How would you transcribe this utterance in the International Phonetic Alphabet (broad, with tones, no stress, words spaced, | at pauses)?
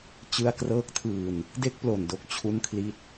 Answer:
t͡ɕɯ˧a̯krɤː˦˥k̚tʰɯː˧n | de˥˩k̚plo˨˩ndo˦˥k̚ t͡ɕʰu˦˥nkʰli˦˥t̚